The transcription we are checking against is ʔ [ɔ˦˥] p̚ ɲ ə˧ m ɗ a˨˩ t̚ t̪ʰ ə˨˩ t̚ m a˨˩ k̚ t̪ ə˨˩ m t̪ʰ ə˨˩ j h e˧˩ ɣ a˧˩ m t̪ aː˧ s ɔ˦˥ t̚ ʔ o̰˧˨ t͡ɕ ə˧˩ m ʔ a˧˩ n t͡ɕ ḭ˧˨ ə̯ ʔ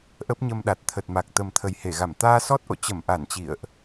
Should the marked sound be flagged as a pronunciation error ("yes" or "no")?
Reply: yes